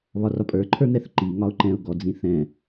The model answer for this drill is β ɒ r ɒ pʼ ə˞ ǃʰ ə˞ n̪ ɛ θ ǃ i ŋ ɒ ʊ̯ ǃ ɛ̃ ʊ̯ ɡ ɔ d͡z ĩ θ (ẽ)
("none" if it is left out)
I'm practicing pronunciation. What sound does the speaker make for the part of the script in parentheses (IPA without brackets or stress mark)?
ɛ̃